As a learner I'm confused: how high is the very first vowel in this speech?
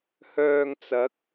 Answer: mid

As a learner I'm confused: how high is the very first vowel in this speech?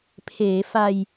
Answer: mid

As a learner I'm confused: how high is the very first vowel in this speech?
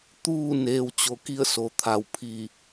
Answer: high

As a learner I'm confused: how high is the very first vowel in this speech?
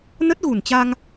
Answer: mid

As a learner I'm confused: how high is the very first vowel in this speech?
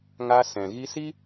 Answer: low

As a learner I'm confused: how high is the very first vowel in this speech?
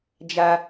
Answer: low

